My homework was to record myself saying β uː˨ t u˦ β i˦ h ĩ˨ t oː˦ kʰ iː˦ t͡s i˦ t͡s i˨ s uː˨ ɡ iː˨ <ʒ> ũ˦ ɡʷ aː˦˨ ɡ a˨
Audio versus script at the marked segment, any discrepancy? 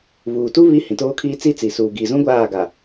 yes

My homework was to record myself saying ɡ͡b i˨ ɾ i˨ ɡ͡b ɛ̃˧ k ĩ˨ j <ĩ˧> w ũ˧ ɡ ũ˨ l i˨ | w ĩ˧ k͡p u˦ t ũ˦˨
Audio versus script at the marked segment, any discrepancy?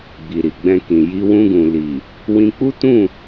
yes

